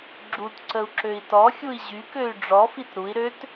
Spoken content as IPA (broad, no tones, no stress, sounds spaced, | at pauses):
ɡ͡ǁ u t ǀ ə u̯ ǁ ø i̯ t ɔ xʲ u i̯ ʑ y k ø y̯ ɖ͡ʐ ɔ f i t ɾ u i̯ ɾ ø t